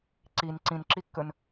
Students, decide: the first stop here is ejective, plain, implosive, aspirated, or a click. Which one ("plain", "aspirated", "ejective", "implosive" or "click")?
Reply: click